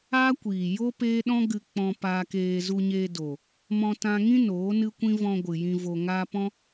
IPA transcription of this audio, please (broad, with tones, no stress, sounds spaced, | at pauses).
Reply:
aː˦ kʷ iː˨ j o˦ p eː˦ ɗ ɔ̃˦ ɡ ɨ˧ k͡p ɔ̃˧ p aː˧ k eː˧ z u˧ ɲ eː˧ d oː˨ | m ɔ̃˧ t ã˧ ŋ ĩ˦ n oː˨˦ n ɨ˦ kʷ ĩ˦ v ɔ̃˧ ɡʷ ɨ˨ j ĩ˧ v o˧ ŋ aː˦ p ɔ̃˦